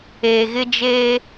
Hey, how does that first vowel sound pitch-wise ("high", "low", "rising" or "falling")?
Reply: low